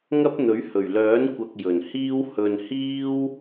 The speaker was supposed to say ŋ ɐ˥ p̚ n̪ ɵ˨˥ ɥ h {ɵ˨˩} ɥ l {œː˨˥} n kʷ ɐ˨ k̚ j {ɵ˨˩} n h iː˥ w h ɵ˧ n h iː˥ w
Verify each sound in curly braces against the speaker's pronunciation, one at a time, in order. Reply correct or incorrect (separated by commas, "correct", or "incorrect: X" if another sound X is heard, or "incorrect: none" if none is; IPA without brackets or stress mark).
correct, correct, correct